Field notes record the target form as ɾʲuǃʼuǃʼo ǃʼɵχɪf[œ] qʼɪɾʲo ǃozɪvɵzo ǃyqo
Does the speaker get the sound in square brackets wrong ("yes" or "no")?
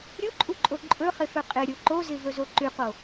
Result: yes